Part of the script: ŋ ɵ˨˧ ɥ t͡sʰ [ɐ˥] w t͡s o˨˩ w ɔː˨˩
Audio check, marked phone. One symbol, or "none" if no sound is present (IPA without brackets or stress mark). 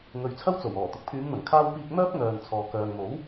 ɐ˥